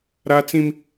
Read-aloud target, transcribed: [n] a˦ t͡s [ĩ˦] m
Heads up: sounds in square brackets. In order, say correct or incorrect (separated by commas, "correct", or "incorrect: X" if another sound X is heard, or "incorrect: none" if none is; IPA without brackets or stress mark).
incorrect: ɾ, correct